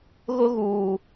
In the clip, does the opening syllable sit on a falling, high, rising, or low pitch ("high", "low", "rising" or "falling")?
high